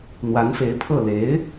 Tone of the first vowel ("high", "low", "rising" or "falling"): rising